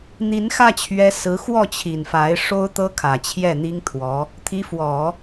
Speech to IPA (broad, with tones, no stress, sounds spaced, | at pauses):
n̪ i˧˥ n x ä˥˩ t͡ɕʰ ɥ ɛ˧˥ s ɹ̩˧˥ x w ɔ˥˩ t͡ɕʰ i˨˩ n f a˧˥ ɪ̯ ʂ o˥ ʊ̯ t̪ ɤ˥ kʰ ä˨˩ t͡ɕʰ j ɛ˥˩ n̪ i˥ ŋ t̪ʰ w ɔ˧˥ | t̪ʰ i˧˥ f w ɔ˨˩˦